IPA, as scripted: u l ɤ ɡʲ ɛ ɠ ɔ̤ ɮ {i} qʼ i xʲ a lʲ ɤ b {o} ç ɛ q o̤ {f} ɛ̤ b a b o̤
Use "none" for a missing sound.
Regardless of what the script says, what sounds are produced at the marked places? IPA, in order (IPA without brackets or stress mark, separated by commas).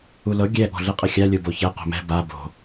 i, o, m